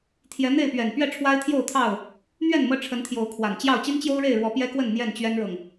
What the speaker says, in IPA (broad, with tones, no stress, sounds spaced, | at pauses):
t̪ʰ j ɛ˨˦ n̪ e˥˨ ɪ̯ p ɥ ɛ˨˩ n p ɥ ɛ˥˨ ʈ͡ʂʰ w a˦ ɪ̯ t̪ʰ j o˥˨ ʊ̯ t̪ʰ ɑ˥˨ ʊ̯ | n̪ ɥ ɛ˥˨ n m ɤ˦ ʈ͡ʂʰ ə˨˦ n t̪ʰ j o˨˦ ʊ̯ kʰ w a˨˩ n t͡ɕ j ɑ˥˨ ʊ̯ t͡ɕ i˦ n t͡ɕ j o˦ ʊ̯ ɻ e˥˨ ɪ̯ ɻ w ɔ˨˦ p j ɛ˦ k w ə˥˨ n n̪ j ɛ˥˨ n t͡ɕ ɥ ɛ˦ n ɻ ɤ˨ ŋ